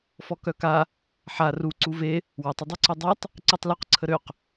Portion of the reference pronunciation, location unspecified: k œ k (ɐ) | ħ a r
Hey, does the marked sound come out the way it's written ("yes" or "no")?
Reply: no